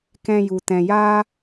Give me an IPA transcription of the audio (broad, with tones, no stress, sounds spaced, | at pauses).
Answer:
k ɛ̃˧ j u˨ t ɛ̃˨ j aː˦